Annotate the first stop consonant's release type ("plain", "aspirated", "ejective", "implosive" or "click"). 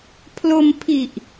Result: aspirated